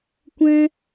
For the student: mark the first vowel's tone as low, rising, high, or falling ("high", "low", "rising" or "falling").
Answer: high